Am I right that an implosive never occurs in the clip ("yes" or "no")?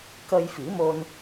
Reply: yes